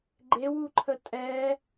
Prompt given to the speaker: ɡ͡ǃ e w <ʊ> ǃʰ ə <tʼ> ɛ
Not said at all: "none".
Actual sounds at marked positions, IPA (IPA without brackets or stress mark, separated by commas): u, tʼ